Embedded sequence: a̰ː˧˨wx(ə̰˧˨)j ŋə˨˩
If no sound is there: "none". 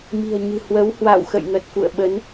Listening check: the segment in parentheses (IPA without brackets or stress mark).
ə̰˧˨